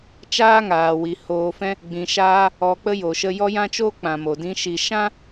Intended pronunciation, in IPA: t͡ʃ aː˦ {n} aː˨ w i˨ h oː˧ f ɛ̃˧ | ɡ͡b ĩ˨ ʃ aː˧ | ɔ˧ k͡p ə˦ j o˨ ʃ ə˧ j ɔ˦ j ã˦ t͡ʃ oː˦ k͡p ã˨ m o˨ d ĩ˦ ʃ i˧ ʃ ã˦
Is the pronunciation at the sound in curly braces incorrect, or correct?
incorrect